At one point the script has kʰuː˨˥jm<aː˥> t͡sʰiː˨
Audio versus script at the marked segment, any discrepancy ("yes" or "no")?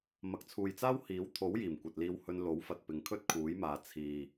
yes